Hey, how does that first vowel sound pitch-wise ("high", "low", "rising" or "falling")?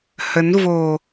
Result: rising